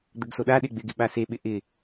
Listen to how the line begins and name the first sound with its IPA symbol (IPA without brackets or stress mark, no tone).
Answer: d̪